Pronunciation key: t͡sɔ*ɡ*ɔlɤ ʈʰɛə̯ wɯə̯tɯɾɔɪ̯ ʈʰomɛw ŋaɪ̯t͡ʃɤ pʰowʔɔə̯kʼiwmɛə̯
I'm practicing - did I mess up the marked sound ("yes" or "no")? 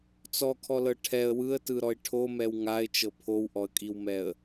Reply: yes